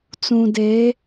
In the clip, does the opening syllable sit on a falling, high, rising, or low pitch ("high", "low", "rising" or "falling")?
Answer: low